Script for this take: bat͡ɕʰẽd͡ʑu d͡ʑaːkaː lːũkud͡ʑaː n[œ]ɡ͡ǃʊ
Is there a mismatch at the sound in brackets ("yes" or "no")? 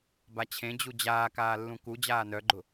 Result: no